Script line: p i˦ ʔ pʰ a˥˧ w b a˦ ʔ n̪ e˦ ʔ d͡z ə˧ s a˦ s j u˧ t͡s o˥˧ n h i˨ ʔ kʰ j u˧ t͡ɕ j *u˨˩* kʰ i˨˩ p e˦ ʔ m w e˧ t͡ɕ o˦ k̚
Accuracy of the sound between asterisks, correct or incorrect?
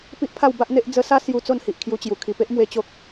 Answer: correct